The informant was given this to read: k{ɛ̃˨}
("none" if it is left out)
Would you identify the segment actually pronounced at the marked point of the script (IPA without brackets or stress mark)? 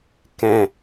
ɛ̃˨